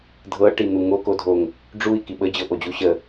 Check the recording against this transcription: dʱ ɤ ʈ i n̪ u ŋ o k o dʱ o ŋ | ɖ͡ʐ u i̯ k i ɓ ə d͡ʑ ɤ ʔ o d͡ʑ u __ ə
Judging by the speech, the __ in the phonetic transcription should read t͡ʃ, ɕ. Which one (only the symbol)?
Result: ɕ